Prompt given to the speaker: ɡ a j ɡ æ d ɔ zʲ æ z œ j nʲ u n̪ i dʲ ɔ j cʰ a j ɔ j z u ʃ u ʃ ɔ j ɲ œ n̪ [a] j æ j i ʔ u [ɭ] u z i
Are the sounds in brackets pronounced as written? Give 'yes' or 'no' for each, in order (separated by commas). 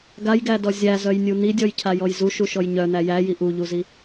no, no